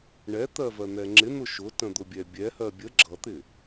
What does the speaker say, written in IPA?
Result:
ɳɛt̪ɜvɜn̪ɛ ŋ͡ǁɪn̪ʊ ʃʊtə̃d̪ʊbʲɛ bʲɛhɜ bʲə ɡ͡ǁʌt̪ɪ

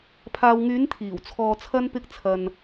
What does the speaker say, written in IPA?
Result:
pʰaː˨wŋyː˨˧n t̪ʰiː˨˩w t͡sʰɔː˧t͡sʰɐ˥npɪ˥k̚t͡sʰɐ˧n

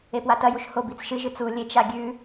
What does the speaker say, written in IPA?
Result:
epwatɐjuʃ hob it͡sʃɨʒɨt͡s u lʲet͡ʃa ɡʲʉ

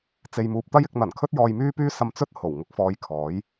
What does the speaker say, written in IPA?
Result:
t͡se˨jmuː˨p̚t̪ɐ˥jɪ˧k̚ n̪ɐ˨˩nkʰɵ˥t̚ jɔː˧jmyː˥pyː˥ sɐ˧mt͡sɵ˥t̚ ho˨˩wŋʊ˧k̚fɔː˧j kʰɔː˨˥j

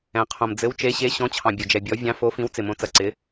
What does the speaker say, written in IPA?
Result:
ɛ̃˧qʰõ˧m d͡zɘ˧˥wt͡ʃe˧˥ ɕe˧˥ɕɔ̃˧˥t͡ɕʰɑ̃˧ bʲo˧d͡ʒɛ˧bʲɔ˧˥ vʲɑ̃˧˥fo˧˥fĩ˧˥w t͡sɪ˧mõ˧˥t͡sɐ˧ ǀɪ˧˥

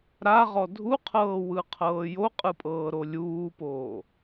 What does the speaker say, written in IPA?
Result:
ɾaʁɔ dʱuqʰɤːwɯqʰɤː joqʼɯpʼɤːɾo lʲuːpoː

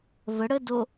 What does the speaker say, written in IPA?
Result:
və ɽə do

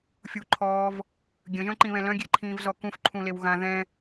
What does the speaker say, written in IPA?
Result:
fʲuǃʰɔːv | ɡʲə̃ʒœ̃ǃĩβɛ̃ lœ̃ɡʲeǃʰĩːvzɔ kũfǃʰũlew ɣã ðɛ̃

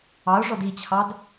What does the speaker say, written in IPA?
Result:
ɑʊ̯ʐɔd it͡ɕʰɑd

